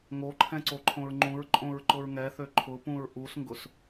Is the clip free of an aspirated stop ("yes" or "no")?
no